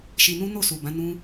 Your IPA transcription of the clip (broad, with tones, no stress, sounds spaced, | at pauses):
ʃ i˧ n ũ˦ n o˦˨ s u˨ b ã˨˦ n ũ˦